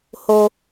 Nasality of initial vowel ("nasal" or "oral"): oral